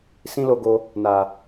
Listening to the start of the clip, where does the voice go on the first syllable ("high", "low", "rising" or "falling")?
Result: high